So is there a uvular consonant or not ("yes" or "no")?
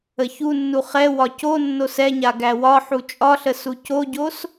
yes